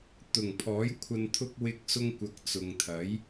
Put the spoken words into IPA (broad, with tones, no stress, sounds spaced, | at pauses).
t̪ ʊ˨˩ ŋ pʰ ɔː˨˥ j kʷʰ ɐ˧ n t̪ʰ ʊ˥ k̚ w ɪ˥ k̚ s ʊ˧ ŋ kʷ ɐ˨˥ k̚ t͡s ʊ˨ ŋ t̪ʰ ɐ˨˥ j